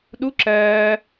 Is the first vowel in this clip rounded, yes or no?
yes